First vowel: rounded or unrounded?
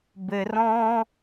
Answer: unrounded